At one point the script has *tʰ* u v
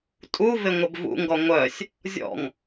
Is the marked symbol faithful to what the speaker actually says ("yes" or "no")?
no